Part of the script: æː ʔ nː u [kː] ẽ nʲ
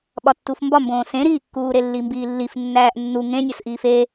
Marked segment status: incorrect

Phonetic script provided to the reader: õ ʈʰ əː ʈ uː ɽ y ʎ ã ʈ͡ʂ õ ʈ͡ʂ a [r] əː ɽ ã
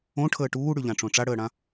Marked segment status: incorrect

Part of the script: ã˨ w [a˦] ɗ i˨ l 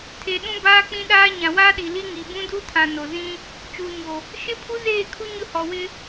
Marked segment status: incorrect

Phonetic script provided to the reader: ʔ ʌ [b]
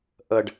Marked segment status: incorrect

